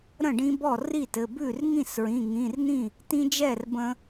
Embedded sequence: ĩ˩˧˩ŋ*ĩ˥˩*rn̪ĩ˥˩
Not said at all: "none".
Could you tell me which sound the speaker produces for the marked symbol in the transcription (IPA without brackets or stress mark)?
ĩ˩˧˩